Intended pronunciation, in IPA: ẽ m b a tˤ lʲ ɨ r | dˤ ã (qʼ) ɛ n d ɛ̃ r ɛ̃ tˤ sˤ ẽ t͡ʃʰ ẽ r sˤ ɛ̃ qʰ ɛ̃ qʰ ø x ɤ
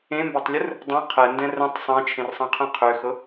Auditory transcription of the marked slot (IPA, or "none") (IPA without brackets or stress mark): qʰ